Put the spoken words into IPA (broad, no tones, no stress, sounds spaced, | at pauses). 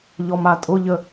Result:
ʎ ɔ m a tʼ ʊ ʎ ə